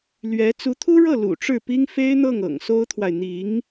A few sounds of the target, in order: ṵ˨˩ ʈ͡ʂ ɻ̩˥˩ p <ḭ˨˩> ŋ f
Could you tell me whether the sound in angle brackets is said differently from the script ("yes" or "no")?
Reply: yes